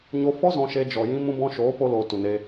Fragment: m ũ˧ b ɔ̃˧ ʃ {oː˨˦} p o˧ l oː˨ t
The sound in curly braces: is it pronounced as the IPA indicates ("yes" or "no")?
yes